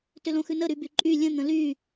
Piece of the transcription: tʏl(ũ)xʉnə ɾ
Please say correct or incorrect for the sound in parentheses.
incorrect